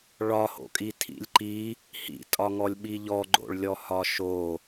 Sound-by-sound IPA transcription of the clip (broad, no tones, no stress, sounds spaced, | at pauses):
ɭ ɒ h o̰ kʼ i tʰ ḭ lʲ ǃ i | h ḭ tʼ ɒ ŋ ɔ lʲ ɓ i ʎ ɔ ɡ͡ǃ o̰ ɭ lʲ ɔ h ɒ ʃ o